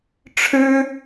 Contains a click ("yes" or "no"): no